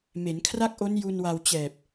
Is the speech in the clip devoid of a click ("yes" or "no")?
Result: yes